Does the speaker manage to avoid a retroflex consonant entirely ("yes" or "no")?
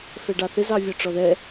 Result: no